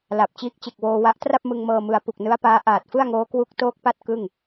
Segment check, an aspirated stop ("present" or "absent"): absent